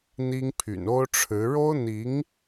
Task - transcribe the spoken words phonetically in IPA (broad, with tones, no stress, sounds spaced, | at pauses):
n̪ i˥ ŋ pʰ y̰˨˩ n o˥ ʊ̯ ʈ͡ʂʰ ɻ̩˧˥ ɻ o˥ ʊ̯ n̪ i˧˥ ŋ